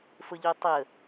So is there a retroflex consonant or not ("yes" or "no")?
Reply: no